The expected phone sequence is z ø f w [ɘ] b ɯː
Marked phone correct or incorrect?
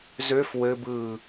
correct